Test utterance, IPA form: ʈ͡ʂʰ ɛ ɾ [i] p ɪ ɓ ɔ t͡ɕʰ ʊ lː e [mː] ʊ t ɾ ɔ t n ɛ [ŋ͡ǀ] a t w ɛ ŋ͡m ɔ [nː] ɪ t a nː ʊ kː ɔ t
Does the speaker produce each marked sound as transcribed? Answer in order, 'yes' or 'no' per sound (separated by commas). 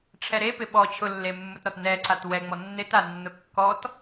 no, yes, no, yes